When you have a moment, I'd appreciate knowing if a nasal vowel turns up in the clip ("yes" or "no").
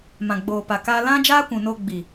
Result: yes